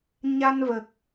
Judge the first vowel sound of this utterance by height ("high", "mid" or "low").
low